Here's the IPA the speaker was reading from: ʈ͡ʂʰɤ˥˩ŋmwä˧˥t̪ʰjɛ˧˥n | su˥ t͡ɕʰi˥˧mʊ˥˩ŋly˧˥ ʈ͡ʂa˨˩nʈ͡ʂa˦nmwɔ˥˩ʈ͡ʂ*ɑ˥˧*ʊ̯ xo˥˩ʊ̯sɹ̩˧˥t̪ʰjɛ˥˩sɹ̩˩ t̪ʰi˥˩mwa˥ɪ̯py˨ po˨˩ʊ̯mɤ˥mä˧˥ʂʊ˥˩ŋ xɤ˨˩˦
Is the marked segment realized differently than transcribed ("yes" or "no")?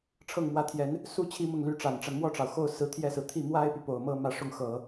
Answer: yes